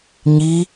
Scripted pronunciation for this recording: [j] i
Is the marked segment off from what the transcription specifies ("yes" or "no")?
yes